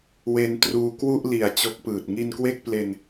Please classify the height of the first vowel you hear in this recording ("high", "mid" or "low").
mid